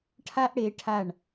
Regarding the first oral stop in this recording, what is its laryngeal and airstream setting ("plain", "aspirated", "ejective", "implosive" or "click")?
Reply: aspirated